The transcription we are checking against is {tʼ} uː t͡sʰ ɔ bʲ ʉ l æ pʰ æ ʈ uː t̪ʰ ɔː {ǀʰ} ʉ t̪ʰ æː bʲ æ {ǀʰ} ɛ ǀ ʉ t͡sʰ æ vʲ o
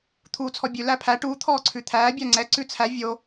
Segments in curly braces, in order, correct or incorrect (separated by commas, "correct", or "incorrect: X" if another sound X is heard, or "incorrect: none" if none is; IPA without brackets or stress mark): incorrect: t̪ʰ, correct, incorrect: ŋ͡ǀ